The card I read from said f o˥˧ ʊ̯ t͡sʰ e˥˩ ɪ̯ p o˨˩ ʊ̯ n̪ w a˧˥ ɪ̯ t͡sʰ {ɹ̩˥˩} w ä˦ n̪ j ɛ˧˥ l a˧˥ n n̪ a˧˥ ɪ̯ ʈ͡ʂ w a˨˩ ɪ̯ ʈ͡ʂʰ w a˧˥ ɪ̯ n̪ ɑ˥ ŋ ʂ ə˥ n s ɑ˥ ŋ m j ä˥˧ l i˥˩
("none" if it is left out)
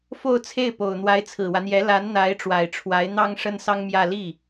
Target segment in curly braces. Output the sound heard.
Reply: ɹ̩˨˩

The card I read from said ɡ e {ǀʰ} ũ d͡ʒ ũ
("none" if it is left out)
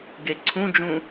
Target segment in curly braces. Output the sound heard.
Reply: ǀʰ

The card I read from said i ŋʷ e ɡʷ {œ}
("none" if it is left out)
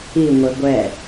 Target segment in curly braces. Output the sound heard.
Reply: ɛ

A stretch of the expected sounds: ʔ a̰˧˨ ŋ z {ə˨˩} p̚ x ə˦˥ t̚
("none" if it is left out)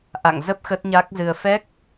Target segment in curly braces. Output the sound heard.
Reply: ə˦˥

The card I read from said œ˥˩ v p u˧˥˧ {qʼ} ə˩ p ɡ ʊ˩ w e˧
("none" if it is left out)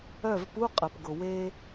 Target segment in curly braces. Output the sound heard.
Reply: qʼ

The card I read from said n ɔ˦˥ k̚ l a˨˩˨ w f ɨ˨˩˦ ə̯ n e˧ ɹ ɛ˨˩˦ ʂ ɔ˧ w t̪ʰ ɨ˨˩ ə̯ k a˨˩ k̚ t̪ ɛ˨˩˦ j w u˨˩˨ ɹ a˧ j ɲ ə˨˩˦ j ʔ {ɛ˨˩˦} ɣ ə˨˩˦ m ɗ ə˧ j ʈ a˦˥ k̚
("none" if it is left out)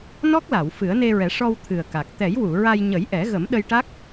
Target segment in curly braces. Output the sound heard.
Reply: ɛ˨˩˦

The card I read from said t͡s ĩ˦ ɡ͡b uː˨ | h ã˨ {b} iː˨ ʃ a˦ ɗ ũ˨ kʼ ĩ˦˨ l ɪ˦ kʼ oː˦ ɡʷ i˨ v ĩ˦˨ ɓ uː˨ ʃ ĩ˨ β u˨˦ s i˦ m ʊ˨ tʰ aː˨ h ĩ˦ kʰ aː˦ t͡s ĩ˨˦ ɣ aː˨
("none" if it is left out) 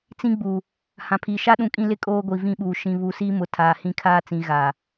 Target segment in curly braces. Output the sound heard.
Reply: pʰ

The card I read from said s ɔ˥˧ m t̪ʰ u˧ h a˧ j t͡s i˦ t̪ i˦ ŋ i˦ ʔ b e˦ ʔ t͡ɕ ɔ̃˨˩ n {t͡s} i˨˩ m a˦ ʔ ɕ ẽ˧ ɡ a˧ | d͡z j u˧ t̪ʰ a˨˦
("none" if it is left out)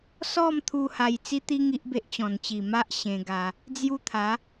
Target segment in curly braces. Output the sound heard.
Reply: t͡ɕ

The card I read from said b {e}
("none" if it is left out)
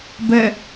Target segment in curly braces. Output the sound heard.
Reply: ɛ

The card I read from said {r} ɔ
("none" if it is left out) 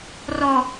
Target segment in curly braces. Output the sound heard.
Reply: r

